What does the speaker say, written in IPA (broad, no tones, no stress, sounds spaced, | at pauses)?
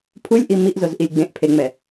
pʰ u lʲ ʔ i m i ʔ z o z ʔ i lʲ ɡ͡b ẽ ʔ pʰ e ŋ͡m ɛ